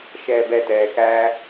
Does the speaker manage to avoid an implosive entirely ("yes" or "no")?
yes